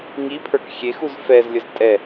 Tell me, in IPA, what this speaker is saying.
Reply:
ŋipʰə˞k xʲexuz fɛzlʲəz tʼɛ

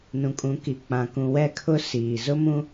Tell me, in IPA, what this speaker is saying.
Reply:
nũ˨kʼũ˨˦ki˨ k͡pã˨kũ˨wɛ˦˨ kʰʊ˦ siː˨ zʊ˦mũ˦

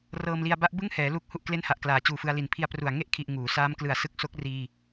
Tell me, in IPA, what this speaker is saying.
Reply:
rɤː˧mli˧a̯ba˦˥ʔ bɯ˥˩ŋhɛː˩˦lu˦˥k̚ hu˥˩ʔkle˥˩nha˨˩ʔklaː˩˦ t͡ɕuː˨˩fɯ˧a̯li˨˩n pʰi˧a̯pru˨˩a̯ ŋe˥˩ʔkʰi˨˩ʔ ŋuː˩˦ saː˦˥mklɯ˨˩a̯sɯ˦˥k̚ so˦˥k̚riː˧

